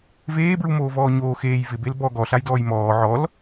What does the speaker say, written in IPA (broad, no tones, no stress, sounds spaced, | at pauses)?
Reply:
v eː b ɹ u m oː v ɔː ɲ oː x eː j v ɪ b e l b ɔ ɡ ɔ ɬ a j d ɔː j m ɔː ʕ ɔ l